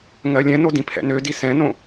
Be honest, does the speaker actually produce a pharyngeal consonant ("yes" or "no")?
no